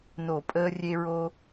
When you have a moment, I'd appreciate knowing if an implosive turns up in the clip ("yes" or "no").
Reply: no